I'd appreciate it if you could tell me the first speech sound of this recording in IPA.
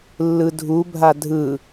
lː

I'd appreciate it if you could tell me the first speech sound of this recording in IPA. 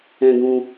ɛ̃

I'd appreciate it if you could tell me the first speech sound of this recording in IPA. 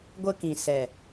ɡʷ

